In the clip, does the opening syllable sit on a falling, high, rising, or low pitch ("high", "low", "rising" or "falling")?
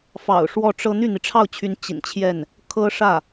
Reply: low